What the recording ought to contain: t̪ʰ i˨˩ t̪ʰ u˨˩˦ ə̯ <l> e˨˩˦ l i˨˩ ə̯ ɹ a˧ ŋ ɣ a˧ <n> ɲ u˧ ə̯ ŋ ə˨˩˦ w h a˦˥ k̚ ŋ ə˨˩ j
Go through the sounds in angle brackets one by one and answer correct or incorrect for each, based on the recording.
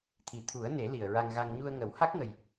incorrect: n, incorrect: ŋ

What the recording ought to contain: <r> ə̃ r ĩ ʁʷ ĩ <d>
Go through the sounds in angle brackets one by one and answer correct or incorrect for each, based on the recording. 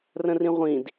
correct, correct

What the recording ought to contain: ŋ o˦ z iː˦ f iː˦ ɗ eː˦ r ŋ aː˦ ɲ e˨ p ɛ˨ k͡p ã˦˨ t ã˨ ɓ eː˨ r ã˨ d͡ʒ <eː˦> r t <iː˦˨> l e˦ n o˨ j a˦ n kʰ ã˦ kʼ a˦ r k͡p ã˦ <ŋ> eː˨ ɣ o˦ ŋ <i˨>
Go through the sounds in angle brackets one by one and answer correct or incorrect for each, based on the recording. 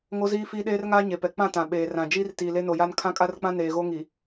incorrect: iː˦, incorrect: iː˨, incorrect: n, correct

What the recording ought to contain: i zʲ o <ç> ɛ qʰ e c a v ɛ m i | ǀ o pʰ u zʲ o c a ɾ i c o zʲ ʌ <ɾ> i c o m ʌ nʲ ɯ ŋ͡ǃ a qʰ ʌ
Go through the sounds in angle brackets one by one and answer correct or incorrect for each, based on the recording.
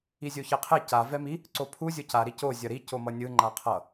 correct, correct

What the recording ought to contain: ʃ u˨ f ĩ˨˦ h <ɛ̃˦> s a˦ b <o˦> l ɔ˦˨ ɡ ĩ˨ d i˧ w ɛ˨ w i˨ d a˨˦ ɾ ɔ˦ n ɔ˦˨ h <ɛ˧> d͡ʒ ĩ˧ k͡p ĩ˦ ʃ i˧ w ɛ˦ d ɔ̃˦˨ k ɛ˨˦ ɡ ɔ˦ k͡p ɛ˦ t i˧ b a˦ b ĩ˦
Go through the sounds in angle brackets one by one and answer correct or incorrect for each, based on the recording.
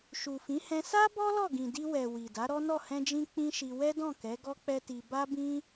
incorrect: ɛ̃˧, incorrect: ɔ˦, incorrect: ɛ̃˧

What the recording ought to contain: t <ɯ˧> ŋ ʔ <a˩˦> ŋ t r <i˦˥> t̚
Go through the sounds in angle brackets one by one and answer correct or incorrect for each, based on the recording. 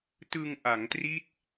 correct, correct, correct

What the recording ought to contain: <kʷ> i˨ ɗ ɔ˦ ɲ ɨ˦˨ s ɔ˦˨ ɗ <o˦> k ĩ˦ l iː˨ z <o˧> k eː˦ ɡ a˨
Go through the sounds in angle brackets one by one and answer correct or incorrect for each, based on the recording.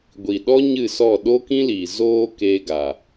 incorrect: ɡʷ, correct, incorrect: oː˧

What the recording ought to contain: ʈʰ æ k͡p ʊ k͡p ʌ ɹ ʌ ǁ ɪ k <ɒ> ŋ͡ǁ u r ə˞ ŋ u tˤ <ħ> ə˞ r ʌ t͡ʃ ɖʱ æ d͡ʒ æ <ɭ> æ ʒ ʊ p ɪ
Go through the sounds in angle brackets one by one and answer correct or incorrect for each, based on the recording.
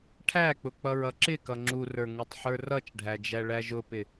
incorrect: ʌ, correct, correct

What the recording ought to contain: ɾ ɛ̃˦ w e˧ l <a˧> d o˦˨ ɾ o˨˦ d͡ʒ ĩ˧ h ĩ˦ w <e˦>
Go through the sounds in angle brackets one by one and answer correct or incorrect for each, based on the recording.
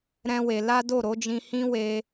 incorrect: a˦, incorrect: e˧

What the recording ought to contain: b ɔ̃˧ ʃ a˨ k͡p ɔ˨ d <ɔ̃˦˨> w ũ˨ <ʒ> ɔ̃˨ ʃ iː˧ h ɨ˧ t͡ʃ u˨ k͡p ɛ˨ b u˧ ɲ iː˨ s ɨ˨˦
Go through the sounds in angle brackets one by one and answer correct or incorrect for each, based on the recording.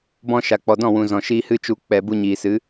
correct, incorrect: z

